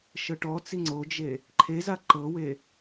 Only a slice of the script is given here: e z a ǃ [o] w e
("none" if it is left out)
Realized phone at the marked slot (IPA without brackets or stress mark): ɤ